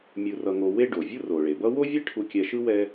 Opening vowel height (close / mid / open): close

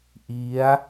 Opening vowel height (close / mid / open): close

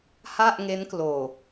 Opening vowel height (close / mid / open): open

